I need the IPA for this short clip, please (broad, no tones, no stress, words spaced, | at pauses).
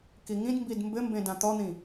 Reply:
kiŋĩdmbid mbɘmbẽ dãt̪ɔn̪ĩ